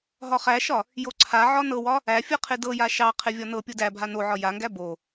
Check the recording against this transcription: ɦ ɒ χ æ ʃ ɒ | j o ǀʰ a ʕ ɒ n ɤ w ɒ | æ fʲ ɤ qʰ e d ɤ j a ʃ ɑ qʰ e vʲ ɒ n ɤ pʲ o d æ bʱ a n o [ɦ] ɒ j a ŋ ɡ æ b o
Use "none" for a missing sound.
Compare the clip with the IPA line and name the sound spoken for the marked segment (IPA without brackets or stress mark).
ʕ